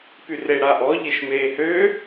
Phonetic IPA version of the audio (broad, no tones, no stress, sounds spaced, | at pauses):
p y r e ɽ a ʔ ɔ ʎ e ʃ m eː h ø